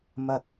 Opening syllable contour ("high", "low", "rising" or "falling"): high